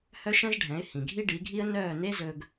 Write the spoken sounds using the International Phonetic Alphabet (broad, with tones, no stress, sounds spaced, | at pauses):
h œ˥ ʃ ɛ̃˥ z ɖʱ ɛ̃˩˥ ɪ̯ h ĩ˩ ɡʱ i˥ ɖ i˩˥ ɡʱ i˥ ə̯ n œː˥˩ n e˥ z ɵ˧ ɡ